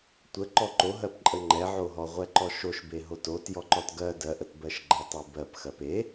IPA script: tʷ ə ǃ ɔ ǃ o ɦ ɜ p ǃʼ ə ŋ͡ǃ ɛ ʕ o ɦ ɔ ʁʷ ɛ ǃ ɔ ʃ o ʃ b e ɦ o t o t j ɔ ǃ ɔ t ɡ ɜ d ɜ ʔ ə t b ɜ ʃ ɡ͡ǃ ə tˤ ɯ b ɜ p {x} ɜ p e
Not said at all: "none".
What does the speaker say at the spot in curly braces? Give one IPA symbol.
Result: x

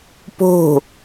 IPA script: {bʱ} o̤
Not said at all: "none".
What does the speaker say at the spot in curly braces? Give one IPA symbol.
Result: p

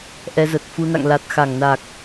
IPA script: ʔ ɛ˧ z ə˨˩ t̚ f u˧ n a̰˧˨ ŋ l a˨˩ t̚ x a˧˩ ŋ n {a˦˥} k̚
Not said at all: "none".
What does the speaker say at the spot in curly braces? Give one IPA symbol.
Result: a˨˩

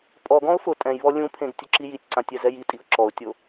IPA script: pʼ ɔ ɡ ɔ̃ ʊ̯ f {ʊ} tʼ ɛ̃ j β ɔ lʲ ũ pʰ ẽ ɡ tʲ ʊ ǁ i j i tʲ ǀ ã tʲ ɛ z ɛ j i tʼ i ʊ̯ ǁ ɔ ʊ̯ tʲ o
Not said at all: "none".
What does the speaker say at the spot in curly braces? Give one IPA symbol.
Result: ʊ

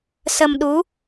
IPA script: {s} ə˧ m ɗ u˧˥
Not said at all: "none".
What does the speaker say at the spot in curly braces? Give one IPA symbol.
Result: s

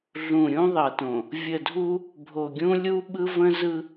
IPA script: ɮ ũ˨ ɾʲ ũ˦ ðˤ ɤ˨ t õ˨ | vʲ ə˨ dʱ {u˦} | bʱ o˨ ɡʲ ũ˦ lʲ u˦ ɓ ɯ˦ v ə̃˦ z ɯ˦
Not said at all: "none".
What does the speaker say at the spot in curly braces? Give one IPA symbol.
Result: u˦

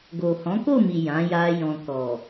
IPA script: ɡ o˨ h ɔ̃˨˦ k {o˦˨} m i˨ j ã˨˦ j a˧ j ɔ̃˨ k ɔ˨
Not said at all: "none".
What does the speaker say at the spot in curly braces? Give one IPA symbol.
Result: o˦˨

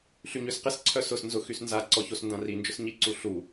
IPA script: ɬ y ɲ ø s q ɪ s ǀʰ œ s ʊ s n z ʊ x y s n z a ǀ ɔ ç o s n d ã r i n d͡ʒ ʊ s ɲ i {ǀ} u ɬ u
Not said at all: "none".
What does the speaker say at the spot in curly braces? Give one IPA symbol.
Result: ǀ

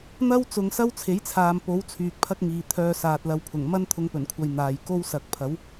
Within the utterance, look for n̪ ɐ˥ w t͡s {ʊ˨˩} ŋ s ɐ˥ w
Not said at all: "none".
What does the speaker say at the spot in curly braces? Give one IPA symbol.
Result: ʊ˨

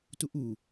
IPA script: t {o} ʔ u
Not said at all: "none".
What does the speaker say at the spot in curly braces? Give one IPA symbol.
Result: u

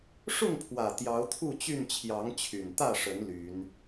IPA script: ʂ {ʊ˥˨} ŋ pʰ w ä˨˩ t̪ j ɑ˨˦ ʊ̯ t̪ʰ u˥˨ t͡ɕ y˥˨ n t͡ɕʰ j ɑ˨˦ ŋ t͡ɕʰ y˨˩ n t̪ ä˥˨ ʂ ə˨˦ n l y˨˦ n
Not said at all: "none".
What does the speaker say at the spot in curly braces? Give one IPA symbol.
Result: ʊ˥˨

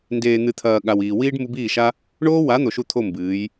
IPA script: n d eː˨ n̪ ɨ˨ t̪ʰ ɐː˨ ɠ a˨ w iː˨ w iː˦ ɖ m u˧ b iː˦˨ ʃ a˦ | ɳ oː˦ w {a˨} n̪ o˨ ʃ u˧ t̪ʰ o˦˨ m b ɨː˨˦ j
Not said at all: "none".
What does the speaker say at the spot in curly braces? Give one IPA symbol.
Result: a˨˦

